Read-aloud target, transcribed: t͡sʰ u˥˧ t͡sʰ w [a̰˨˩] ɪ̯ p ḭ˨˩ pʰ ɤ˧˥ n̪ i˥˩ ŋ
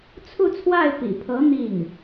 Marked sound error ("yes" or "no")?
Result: yes